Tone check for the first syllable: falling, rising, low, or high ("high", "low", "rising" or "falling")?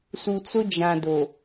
low